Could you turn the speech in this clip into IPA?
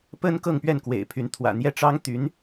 pə˥n kɤ˥˧ŋpɥɛ˥˩nkwḛ˨˩ɪ̯pʰy˧˥n t̪ʰwä̰˨˩ n̪jɛ˥˩ʈ͡ʂɑ˥ŋt̪y˧˥n

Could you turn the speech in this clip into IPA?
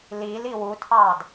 lili wutʰɑd

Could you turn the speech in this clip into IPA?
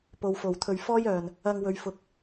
po˨wfo˨˩w t̪ʰɵ˨˩ɥ fɔː˥jœː˨˩n | ɐ˧ŋ wɵ˨ɥfʊ˨k̚

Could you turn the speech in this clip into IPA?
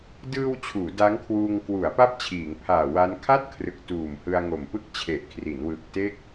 dɯː˧w t͡ɕʰuː˩˦da˦˥ŋkʰwuː˧ŋ kwu˩˦a̯ pa˥˩p̚t͡ɕʰiː˩˦ŋpʰaː˨˩ wa˦˥n kʰa˥˩t̚kʰrɯ˨˩k̚ tuː˨˩mhɯ˧a̯ŋo˨˩m pɯ˥˩k̚t͡ɕʰe˨˩ʔkʰri˩˦n wɯ˨˩k̚te˥˩k̚

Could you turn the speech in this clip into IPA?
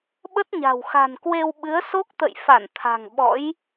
ɓə˦˥t̚ɲa̤˨˩w xa̤˨˩nkwe˧w ɓɨ˨˦ə̯so˦˥k̚t̪ə̰˧˨j fa˧˩nt̪ʰa̤˨˩ŋ ɓɔ̰˧˥j

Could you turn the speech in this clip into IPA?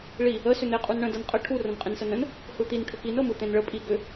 ɭi | ə sʏn̪e qʼunɳə̃ dɤnqʼə ʈʰu rə̃nqʼẽnsənə̃n | hɯt̪in ʈʰʏkin ɤmɯt̪ẽnɭə pʼi ɡʏ

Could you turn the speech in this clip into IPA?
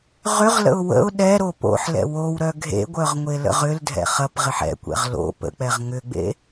ʁʏʁlə̰ʊ̯ wə̰ʊ̯ ɗɛɾo po̰ħlɛ̰ wowɾœ ɡʱḛɡʷœʁ ŋʷelə̰ʁʏldʱɛ̰ χɐpʁɪħ ɛ̰kʷɛ̰ʁ lo̰ pə̰k͡pɛʁ ŋʏɡ͡bḛ

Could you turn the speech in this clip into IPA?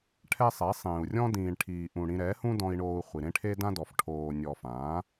ʈʰɛ˦sˤɛ˨˦sˤĩː˨u̯ rʲɔ̃˦ dĩː˨ɳʈʰiː˨ʔũ˨ ɽĩ˧ ɾɛ˨˦hũ˦dɔ̃˧i̯ ɳoː˧u̯χʷi˨ ɾẽ˦ʈʰe˦dã˦dɔ˨f ʈʰoː˨ nʲɔ˨ fãː˨˦

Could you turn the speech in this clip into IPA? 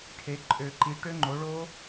ʈʰe˩˥ǃʼø˨˩˦ǃi˩˥ ʈø˦˥ŋ͡ǃo˩˥ɭo˦˥

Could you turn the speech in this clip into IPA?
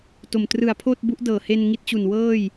to˨˩m trɯ˨˩a̯pʰoː˥˩t̚ bu˦˥ʔdɤː˨˩ he˧n ŋi˦˥t̚t͡ɕu˨˩n wɤː˥˩j

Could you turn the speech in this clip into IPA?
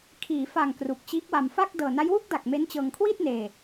kʰiː˩˦fa˨˩ŋ kru˨˩k̚t͡ɕiː˦˥k̚wa˧m fa˥˩k̚ dɤː˨˩na˦˥jwu˥˩k̚da˨˩k̚ me˦˥nt͡ɕɤː˧ŋ kʰwiː˥˩t̚neː˧

